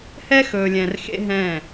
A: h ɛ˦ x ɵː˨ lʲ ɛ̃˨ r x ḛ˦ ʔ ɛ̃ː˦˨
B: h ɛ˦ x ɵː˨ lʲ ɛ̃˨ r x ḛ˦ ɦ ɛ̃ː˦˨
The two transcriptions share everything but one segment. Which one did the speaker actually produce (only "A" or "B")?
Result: B